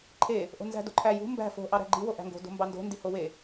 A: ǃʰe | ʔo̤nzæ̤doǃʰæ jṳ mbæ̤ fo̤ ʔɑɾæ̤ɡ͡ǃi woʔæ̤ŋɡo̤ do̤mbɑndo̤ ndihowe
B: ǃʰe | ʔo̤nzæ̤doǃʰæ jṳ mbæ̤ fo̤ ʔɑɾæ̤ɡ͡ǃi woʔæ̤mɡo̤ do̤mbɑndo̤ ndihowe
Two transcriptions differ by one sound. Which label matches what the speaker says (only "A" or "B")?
A